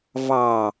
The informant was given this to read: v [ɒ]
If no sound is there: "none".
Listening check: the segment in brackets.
ɑ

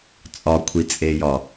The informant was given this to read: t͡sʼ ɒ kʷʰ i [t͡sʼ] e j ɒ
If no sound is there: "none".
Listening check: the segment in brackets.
t͡sʼ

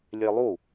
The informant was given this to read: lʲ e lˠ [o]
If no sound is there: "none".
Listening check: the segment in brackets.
u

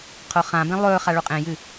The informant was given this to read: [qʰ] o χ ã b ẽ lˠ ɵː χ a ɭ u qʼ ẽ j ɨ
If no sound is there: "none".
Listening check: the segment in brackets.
qʰ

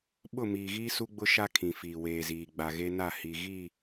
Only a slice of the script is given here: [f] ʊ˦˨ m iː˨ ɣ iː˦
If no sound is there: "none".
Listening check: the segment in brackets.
ɓ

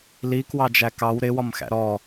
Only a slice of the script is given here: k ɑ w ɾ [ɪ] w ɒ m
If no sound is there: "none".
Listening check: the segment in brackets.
ɪ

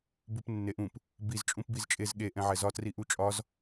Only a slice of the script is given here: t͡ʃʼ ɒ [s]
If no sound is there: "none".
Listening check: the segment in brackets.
z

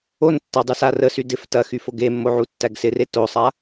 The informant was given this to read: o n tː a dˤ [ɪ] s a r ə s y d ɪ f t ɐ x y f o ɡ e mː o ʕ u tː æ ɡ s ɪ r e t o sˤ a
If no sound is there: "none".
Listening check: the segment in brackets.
y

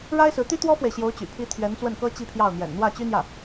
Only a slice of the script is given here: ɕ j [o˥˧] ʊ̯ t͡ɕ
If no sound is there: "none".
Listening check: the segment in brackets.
o˧˥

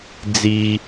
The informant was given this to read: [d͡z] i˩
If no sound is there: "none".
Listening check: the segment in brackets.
d͡z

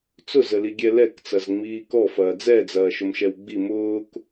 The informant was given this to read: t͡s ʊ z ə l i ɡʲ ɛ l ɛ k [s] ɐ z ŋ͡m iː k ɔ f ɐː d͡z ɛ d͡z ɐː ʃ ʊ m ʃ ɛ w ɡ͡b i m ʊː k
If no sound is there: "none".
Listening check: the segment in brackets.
t͡s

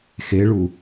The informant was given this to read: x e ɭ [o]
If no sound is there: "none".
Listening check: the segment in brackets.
u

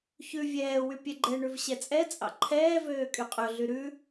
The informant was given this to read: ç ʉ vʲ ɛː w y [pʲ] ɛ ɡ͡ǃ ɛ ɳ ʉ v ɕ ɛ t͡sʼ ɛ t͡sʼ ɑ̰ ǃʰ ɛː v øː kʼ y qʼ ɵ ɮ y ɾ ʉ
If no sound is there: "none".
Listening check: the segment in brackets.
pʲ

